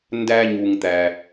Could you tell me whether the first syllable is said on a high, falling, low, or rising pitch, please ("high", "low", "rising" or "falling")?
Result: low